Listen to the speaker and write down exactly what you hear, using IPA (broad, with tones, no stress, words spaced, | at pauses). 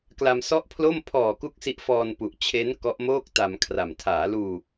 kla˧msɔ˥˩ʔpʰlo˥˩m pʰɔː˨˩ku˦˥k̚ si˦˥ʔfɔː˧npu˨˩ʔ t͡ɕʰe˦˥n kɔ˦˥ʔmoː˥˩k̚ta˧mkʰra˨˩m tʰaː˩˦luː˧